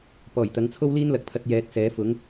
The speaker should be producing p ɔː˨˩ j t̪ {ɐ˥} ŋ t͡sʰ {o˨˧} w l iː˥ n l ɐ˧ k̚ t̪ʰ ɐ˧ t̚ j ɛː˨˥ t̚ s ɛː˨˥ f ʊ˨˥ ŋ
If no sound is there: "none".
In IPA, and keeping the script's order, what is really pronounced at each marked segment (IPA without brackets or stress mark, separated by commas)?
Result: ɐ˨˥, o˥